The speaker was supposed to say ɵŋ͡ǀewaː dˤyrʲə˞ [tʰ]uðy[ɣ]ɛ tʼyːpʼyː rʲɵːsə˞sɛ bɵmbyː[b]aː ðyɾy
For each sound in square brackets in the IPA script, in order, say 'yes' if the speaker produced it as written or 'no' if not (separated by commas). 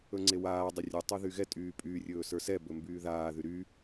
no, yes, no